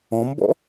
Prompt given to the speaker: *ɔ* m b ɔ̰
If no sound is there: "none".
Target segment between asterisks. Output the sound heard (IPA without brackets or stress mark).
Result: ɔ̃